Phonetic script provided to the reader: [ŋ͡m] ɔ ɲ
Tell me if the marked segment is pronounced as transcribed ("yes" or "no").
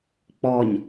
no